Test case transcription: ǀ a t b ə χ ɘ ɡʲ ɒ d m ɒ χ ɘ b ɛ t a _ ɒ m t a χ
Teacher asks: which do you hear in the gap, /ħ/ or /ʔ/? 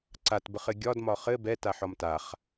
ħ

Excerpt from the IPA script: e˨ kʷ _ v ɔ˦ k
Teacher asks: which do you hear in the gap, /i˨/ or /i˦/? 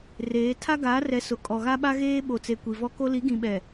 i˨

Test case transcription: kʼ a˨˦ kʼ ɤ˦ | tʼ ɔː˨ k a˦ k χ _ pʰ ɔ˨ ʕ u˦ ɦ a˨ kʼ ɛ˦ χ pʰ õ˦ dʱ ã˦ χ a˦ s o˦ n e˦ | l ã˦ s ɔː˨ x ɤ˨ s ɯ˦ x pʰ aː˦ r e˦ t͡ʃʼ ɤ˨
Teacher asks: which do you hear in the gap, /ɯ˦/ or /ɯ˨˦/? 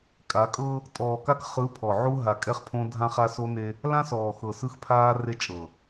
ɯ˨˦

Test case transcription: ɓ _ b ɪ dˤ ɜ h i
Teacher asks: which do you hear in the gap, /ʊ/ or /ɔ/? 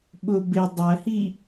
ʊ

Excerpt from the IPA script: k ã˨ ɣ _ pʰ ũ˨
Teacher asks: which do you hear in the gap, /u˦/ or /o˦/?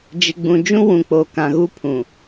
u˦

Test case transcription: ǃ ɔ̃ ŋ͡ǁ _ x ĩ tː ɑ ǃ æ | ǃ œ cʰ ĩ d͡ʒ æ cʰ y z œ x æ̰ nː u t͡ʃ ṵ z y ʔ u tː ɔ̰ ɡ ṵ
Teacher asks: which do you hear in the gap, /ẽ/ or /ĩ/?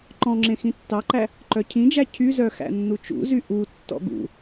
ẽ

